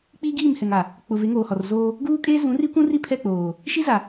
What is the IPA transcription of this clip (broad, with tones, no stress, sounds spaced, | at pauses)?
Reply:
k͡p iː˦ ɡ iː˦˨ m h ɛ˨ ŋ a˨ | k͡p ʊ˨ v e˨˦ ŋ oː˨ h ɔ˨ r z oː˦ | ɡ uː˦ kʼ eː˦ z ũ˨˦ r i˦ kʷ ũ˦ r i˦ pʰ ɛ˦˨ k͡p oː˨ | ʃ i˦ z a˨